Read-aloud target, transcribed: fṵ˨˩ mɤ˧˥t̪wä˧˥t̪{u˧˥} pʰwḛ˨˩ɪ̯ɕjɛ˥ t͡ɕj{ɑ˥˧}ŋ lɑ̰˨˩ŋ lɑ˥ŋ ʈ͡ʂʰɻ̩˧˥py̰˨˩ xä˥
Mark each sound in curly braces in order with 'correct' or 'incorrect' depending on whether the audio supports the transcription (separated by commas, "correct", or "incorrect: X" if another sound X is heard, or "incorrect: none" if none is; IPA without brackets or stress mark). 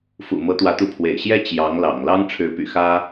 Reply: correct, incorrect: ɑ˧˥